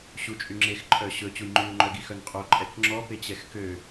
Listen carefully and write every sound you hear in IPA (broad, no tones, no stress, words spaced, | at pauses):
ɕut͡ʃʼyŋ͡ǁex ǃʼœɕɵ t͡ɕujŋ͡ǃyu̯ŋ͡ǃœɡi xœnqʼo ǃʼɛkŋ͡ǁɔpe t͡ɕɛxkø